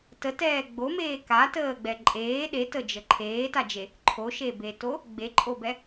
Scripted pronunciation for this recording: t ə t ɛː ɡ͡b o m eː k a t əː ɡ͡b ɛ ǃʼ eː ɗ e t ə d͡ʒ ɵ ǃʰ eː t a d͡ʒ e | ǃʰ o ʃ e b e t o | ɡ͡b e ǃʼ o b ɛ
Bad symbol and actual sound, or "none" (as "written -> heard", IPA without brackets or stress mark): ɵ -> ə